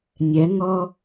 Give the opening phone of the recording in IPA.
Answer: nʲ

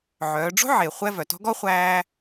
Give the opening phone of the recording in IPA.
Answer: ʕ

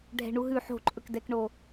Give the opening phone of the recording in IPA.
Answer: ɖʱ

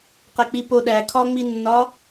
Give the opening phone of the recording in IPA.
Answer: q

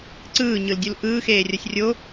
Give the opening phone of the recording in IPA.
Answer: ǀ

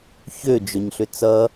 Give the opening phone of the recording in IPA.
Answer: ç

